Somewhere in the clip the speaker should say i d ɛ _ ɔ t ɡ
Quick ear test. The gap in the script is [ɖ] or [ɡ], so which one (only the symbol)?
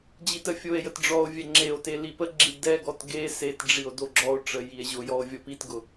ɡ